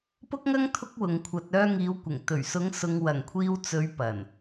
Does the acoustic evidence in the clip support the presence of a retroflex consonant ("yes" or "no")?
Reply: no